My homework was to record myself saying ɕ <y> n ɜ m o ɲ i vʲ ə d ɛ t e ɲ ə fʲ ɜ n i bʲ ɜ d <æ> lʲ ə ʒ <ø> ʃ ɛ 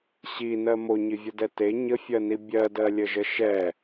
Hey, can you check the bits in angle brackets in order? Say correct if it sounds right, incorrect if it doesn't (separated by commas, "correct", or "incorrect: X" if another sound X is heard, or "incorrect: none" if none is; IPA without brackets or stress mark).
incorrect: i, incorrect: ɜ, incorrect: ə